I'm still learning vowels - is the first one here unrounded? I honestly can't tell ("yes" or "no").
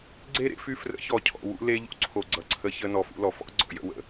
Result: yes